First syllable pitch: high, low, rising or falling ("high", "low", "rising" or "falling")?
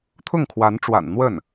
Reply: falling